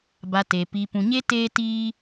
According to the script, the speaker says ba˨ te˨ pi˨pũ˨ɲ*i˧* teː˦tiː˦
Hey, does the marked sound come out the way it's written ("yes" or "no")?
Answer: no